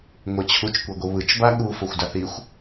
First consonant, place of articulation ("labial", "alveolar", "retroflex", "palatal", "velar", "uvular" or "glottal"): velar